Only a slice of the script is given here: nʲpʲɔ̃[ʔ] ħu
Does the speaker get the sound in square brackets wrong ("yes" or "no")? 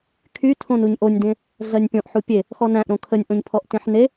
no